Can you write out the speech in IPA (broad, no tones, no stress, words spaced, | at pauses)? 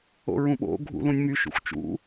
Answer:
o̰ɹũɓo̰ ɡʱṵlũnʲmy ʃṵxʷt͡ʃṵ